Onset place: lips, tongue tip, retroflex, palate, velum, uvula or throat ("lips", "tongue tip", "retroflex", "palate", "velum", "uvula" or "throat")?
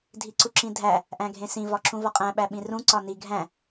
tongue tip